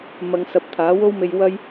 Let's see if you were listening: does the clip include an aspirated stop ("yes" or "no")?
yes